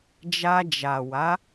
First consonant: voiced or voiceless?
voiced